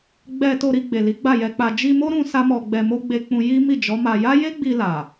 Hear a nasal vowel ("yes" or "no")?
yes